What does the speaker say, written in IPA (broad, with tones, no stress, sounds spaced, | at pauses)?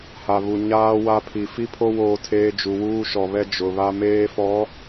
h a˨ β u˨ ɲ aː˦ w a˦ pʰ i˨ f i˦ pʰ o˦ w oː˦ tʰ eː˦ d͡ʒ u˨ w uː˦ ʃ ɔ˨ β ɛ˦ d͡ʒ ʊ˨ β a˦ m eː˦ f ɔ˨˦